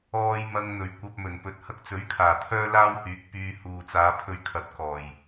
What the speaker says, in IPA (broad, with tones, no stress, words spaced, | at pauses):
ɔː˧j mɐ˧ŋn̪ɵ˨˩ɥ kʷɐ˧p̚mɵ˨˩npɵ˨t̚ hɐ˧k̚t͡sɵ˨˥ɥkʰaː˨˩ t̪ʰœː˥laː˥whyː˨˥k̚ pyː˧ huː˨t͡saː˨˧pʰɵ˧ɥkʰɐ˨˥t̚ kɔː˨˩j